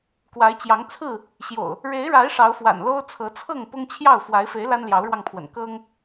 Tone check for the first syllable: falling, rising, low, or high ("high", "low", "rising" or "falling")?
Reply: rising